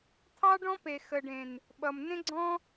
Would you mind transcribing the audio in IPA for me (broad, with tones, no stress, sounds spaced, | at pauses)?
t̪ʰ ɑ˦ ɖ ɔ̃˦ p e˨ x ə˨ ɖ ẽ˨ n | ɓ ʌ˨ m n ẽ˦ ɡ͡ǀ ɔ̃˦